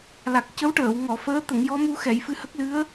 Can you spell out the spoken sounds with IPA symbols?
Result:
l a˨˩ k̚ c ə˧˥ w ʈ əː˨˩˨ w ŋ ɔ˨˩˨ f əː˧˥ t̪ ə˨˩˨ ŋ j ɔ˧˥ m u˧ x ɛ˨˩˨ j f ɨ˧ h ə˦˥ k̚ l ɨ˧˥ ə̯

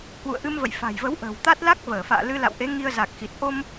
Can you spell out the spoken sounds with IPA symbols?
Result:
h w ṵ˧˨ ə̯ ʔ ɨ˧ m v ə̰˧˨ j f a̤˨˩ j v ə˨˦ w ʔ ə̤ː˨˩ w t̪ a˦˥ t̚ l a˦˥ k̚ v əː˧˩ f a̰ː˧˨ l ɨ˧ l a̰˧˨ w ʔ e˨˦ ŋ i˧ ə̯ z a˨˩ k̚ x i˨˩ t̚ ʔ o˧ m

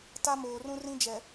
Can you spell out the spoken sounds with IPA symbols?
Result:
t a˦ m oː˨ r ũ˦ r ĩ˦ d͡ʒ ɛ˨

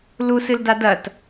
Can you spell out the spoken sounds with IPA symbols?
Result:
l u s ɨ l d a d ɐ t

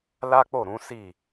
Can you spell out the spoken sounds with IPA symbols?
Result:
l a˦ k͡p o˦˨ ɾ ũ˨˦ s i˦˨

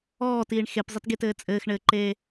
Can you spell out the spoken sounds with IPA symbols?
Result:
ɔː t iː ɳ x e p zˤ ɘ t ɡ e t ɘː t͡sʼ ɘː x ɳ ɘː ǃ eː

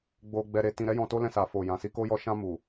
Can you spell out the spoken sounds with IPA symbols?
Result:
ɡ͡b o˧ ɡ͡b ɛ˧ ɾ e˧ t ĩ˧ ɾ ɛ˦ j ɔ̃˧ t o˦ l ɛ̃˧ s a˨ f o˨ j ã˨ s i˧ k o˦ j ɔ˧ ʃ ã˧ m u˨

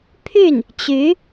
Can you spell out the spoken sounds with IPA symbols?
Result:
pʰ y˥˩ n | t͡ɕ y˧˥

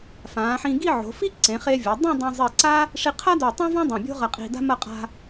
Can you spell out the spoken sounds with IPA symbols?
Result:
f ãː˩˧ ħ ĩ˧ ɡ i˥˧ ʕ o̤˩˧ f i˥ ǀ ẽ˩˧ χ e˧ vʲ ɐ˩˧ dˤ ẽ˥˧ dˤ ẽ˧ zˤ i˧˩ ǀ a˥ | ʂ i˧ qʰ a˥ d o˧˩ tˤ õ˥ v ã˥ dˤ ɐ̃˧˩ bʲ o̤˥ ʁ ɐ˧ qʼ i̤˧ d a̤˥ m ɐ˥˧ qʼ a̤˧

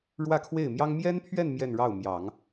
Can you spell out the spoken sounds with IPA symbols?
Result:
ɻ w ä˥˧ kʰ w e˥˩ ɪ̯ m j ɑ˥ ŋ m j ɛ˥ n pʰ ɥ ɛ˥˧ n m j ɛ˥˧ n ɻ ɑ˥˩ ʊ̯ m j ɑ˨˩˦ ŋ

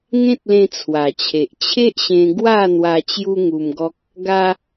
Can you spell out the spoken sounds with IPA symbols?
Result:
ŋ ẽ˦ t̚ l ẽ˧ t͡sʰ w a˨˩ t͡ɕʰ e˨ ʔ t͡ɕʰ e˦ ʔ ɕ ẽ˧ ɡ w a˥˧ n̪ w a˧ t͡ɕ j u˦ ŋ u˧ m ɡ ɔ˦ k̚ | ɡ a˦

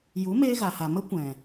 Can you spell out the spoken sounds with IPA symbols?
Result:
j u˨˦ m eː˧ ɣ a˨ h a˨ m ə˦ kʷ ɛ̃˨

